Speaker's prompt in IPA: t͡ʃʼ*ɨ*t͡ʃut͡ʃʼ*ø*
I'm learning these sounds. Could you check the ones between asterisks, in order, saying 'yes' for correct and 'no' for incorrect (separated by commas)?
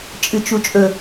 yes, no